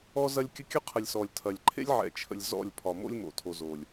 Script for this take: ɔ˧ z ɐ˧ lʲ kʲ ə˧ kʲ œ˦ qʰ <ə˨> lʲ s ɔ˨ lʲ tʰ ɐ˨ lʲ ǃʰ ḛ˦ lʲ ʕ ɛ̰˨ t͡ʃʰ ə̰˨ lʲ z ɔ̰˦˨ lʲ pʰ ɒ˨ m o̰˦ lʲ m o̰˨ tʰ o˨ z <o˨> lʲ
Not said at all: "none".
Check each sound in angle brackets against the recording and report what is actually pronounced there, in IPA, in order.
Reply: ə˨, o˨

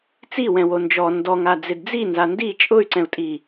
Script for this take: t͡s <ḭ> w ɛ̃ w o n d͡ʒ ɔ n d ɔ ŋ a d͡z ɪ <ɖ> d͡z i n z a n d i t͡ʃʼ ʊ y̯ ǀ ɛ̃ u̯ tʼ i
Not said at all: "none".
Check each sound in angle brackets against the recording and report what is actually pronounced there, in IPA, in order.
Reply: i, d

